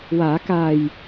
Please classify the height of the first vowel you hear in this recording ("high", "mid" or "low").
low